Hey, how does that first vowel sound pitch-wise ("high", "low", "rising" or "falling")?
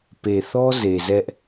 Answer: low